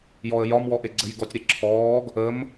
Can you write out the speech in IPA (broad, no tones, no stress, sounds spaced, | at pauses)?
j ɔ ə̯ j ɒ m w ɔ ʔ e ɡ͡ǀ ə j ɡ ɔ tʲ ɾ e ǁʰ ɔː ɡ | ə m